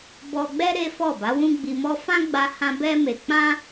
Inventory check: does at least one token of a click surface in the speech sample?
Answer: no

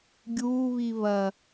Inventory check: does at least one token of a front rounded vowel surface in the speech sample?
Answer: no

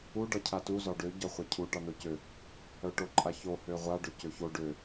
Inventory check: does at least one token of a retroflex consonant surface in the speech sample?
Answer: yes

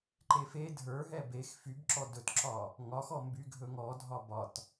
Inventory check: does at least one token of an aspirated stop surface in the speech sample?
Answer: no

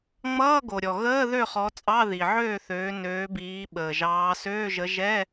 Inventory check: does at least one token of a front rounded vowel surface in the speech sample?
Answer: yes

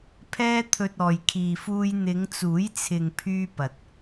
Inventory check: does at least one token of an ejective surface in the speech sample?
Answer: no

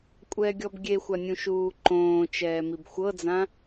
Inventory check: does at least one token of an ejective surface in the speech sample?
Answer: yes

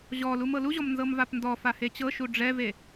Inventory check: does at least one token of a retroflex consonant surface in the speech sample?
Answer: yes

